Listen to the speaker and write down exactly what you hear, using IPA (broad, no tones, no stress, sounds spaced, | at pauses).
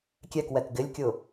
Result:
kʲ ɛ k w ɛ k ɡ ɪ lʲ kʲ ʊ